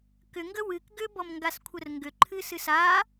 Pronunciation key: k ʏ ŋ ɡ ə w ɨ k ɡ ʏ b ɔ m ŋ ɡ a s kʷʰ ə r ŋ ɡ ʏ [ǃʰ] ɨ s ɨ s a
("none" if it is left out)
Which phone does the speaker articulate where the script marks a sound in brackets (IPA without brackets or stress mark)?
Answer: ǃʰ